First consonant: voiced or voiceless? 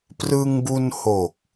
voiceless